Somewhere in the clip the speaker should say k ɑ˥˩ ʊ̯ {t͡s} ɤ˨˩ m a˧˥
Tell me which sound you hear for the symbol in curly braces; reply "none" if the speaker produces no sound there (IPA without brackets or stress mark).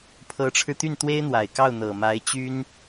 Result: n̪